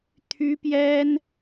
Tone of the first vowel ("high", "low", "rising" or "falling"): high